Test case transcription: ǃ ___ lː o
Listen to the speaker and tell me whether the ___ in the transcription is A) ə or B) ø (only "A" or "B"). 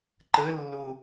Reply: A